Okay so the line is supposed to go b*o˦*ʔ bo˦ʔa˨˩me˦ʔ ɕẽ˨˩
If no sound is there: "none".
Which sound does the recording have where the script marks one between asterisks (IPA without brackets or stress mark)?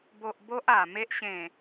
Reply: o˨